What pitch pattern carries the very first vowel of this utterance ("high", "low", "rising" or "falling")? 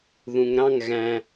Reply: low